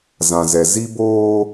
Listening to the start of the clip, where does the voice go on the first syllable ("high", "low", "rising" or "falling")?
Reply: low